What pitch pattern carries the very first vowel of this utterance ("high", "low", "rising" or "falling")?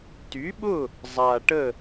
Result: rising